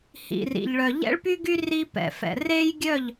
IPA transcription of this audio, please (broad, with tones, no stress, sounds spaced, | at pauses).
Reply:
h ḭ˨ r ḭ˨ ʎ ɭ œ˨ ʎ ɛ̰˦ ɭ p y˦ ɡ y˦ r i˦ p ɛ̰˨ f ɛ̰˨ r e˦ j ɡʲ œ˦˨ ʎ